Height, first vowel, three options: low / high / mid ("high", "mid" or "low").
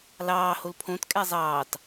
low